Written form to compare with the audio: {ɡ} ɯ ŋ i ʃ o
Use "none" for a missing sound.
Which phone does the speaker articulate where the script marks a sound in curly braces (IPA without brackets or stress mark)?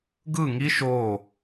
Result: ɡ